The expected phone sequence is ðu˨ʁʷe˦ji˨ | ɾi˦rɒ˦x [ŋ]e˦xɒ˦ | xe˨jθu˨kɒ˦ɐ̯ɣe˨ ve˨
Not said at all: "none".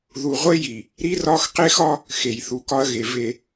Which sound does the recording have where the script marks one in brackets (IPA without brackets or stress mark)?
q